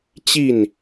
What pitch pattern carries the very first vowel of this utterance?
falling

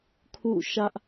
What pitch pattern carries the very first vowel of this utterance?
falling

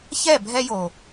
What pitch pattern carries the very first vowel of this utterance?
falling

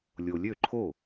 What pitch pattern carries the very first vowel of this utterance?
low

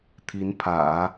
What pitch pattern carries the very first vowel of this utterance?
rising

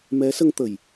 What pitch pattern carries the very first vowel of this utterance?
rising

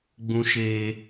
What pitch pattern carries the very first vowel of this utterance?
high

